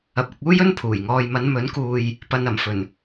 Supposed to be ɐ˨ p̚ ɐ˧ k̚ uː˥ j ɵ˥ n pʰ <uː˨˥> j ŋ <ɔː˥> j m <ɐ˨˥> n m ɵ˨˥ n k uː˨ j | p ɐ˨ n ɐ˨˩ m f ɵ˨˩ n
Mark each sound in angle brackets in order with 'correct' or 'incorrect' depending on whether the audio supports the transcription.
incorrect: uː˨˩, incorrect: ɔː˨, incorrect: ɐ˨˧

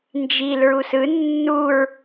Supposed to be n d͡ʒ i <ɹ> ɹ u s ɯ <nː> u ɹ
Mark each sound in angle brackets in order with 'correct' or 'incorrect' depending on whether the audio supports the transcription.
incorrect: l, correct

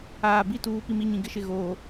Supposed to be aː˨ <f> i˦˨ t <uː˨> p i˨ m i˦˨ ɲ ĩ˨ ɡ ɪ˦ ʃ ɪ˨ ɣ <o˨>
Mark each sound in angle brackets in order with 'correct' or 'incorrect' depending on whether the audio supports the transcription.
incorrect: b, correct, incorrect: oː˨

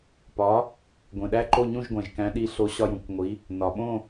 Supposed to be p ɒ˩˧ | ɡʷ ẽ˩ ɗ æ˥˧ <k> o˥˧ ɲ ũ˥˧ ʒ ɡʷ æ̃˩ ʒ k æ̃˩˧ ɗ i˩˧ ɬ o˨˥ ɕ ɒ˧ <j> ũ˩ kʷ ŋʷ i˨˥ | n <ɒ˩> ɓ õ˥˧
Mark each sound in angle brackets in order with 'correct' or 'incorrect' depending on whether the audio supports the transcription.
incorrect: ǃ, correct, correct

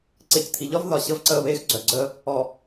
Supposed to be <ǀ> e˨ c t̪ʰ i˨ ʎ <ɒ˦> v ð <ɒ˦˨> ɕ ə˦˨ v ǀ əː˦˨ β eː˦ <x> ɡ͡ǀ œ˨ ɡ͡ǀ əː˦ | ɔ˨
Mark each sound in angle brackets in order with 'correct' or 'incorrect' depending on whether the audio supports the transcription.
correct, correct, incorrect: ɒ˨, correct

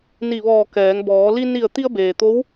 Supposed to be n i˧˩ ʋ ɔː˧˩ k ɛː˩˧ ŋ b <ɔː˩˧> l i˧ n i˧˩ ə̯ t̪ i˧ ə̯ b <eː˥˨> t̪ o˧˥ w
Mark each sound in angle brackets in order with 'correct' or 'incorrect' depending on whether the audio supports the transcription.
correct, incorrect: eː˩

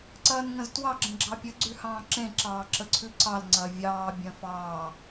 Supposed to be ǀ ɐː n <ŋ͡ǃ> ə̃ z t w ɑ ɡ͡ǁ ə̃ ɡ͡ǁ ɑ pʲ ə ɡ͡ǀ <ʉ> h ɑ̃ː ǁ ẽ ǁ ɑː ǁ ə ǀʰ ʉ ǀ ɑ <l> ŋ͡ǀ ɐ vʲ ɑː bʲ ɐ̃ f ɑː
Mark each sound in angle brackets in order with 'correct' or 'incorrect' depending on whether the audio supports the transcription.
incorrect: ŋ, correct, correct

